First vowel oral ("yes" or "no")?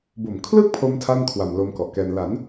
yes